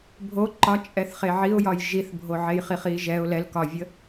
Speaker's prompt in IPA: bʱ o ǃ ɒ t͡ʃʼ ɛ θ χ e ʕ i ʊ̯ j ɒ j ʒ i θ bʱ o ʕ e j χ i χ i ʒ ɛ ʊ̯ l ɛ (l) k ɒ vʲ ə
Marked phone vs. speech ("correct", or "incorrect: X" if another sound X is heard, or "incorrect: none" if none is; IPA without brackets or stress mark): correct